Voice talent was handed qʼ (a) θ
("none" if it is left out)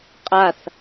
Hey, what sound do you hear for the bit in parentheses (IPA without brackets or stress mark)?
a